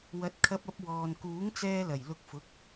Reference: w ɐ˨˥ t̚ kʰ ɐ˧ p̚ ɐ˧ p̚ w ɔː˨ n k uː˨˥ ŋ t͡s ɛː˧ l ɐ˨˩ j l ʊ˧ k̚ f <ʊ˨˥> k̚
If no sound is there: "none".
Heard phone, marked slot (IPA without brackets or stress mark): ʊ˨˥